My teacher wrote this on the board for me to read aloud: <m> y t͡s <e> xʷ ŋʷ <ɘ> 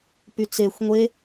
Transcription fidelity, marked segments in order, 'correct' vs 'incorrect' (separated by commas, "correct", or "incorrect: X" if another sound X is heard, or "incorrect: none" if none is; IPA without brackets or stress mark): incorrect: p, correct, incorrect: e